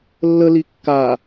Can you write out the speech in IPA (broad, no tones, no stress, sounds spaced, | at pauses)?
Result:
lː ə l i kː a